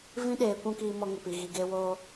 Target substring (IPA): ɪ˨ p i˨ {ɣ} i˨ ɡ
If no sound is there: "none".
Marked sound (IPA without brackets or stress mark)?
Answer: ɣ